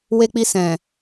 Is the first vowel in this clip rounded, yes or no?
no